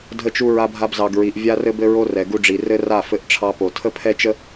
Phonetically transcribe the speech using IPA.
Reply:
dʱə˧t͡ʃu˧ ɹa˧bʱa˧bzɑ˨ɡɹi˨ʔ vʲa˦rɘ˦bɘ˦ɹo˦ rɛ˨ɡu˧ɖ͡ʐi˨rɘ˦ ra˦˨fɘ˧ʔʈ͡ʂʰɑ˧po˨ tʰə˦pʰɛ˦t͡ʃə˦

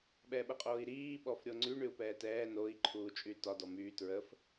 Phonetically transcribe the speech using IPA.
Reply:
ɓɛɓəqʼoːi̯ɾiː ɓɔfɾʲoŋ͡ǀy ɳyu̯pɛːtɛː noi̯ ǃʰuːt͡ʃʼytɒ dɔmyː tɹəf

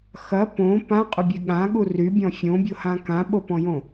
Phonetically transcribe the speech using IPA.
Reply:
xɐ põ pã qʼʏbʲeɠãɠu rybʲɔ̃ fʲõbʲohã kãɓopɔ̃jõ

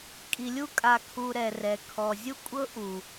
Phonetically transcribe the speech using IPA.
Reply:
kʼi˨lʲu˦ kʼa˧kʰu˧ɾɛ˨rɛ˨ kʰɔ˨zʲu˦kʷʼɤ˦ ʔu˨

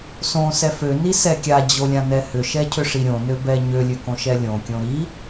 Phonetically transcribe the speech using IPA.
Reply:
sõsɛ fønisɛ kʲad͡ʑolʲãnɛ hʏʃɛcʰʏʂi ɾʲõnøbɛ ɲølʲøkõʃɛ lʲõkʲõ ɾi

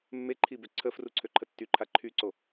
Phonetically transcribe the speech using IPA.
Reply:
mːeǃʰibø ǀʰəfruǀʰøǃʰə tːyǃʰa ǃʰyǀo

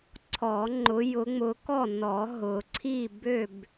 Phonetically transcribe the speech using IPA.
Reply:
ǀʰɔ˨˩˦ŋ͡ǃʊ˨˦ jʊ˨˦ŋ͡mʊ˨˦ kɔ˥˨nɔ˨˩˦ ɦʊ˨˩˦ǀʰi˥˨bø˥˨b

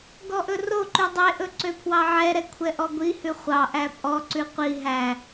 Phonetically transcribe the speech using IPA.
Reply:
ɡɔʔɵroǃʉ dˤeʔɵ ǀøpʰwɑʕɛɾɛ kʷʰɛʔɔɡʷihʉ χʷɑʔæ pʼɔǀʉ qʷi ɦæ

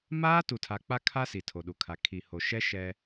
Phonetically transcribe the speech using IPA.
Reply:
maː˦ tu˨tʰa˨k͡pa˦kʰa˦ si˨tʰo˨ɗu˨kʰa˨˦ kʰi˨ho˨ ʃɛ˦ ʃɛ˦

